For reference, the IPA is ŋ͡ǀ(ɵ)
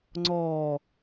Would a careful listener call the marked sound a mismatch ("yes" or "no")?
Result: yes